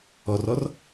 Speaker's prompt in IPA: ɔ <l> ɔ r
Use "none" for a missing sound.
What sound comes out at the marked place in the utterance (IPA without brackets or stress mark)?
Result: r